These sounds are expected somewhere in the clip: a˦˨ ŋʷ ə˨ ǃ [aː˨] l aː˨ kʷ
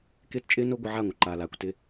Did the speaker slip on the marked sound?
no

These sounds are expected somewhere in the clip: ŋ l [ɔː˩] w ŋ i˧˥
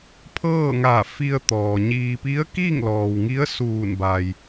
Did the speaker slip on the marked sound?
no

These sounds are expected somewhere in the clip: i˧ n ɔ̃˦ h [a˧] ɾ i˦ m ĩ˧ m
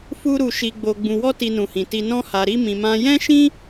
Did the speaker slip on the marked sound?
no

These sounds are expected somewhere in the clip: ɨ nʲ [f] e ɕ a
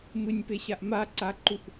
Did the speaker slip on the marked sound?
yes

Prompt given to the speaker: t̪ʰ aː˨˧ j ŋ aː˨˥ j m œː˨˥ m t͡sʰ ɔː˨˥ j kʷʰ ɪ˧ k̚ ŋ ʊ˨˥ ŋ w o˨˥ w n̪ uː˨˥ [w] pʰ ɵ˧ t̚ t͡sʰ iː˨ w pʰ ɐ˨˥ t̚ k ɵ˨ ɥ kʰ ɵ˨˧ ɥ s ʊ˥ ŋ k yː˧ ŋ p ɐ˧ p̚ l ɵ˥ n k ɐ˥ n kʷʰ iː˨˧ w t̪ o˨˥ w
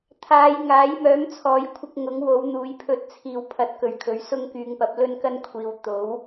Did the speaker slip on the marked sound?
yes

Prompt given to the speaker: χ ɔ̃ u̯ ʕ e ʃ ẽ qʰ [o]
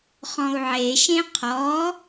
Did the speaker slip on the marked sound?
yes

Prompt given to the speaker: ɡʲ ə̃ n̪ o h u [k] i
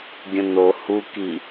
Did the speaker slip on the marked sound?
no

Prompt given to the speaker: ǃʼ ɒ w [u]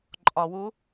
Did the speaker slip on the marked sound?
no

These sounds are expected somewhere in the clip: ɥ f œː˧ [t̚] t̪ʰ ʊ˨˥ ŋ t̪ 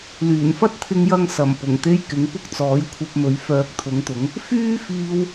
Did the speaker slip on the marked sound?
yes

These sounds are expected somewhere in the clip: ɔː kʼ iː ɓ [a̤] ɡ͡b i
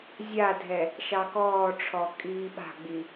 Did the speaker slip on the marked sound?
no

